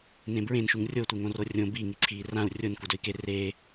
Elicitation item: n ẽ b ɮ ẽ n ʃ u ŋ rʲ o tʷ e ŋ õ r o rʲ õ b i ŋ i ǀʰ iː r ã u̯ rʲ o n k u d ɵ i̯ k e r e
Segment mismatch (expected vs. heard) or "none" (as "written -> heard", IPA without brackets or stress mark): ɮ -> ɹ